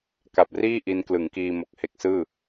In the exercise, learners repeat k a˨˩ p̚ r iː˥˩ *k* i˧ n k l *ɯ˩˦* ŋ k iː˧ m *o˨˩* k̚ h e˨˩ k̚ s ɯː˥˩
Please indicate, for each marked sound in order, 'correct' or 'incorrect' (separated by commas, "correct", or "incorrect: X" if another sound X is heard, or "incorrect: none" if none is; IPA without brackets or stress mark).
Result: incorrect: ʔ, correct, correct